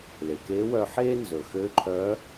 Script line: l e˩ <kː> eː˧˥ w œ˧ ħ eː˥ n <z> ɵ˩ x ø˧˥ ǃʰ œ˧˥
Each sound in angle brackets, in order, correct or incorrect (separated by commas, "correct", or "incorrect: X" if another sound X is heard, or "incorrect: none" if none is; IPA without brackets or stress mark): incorrect: k, correct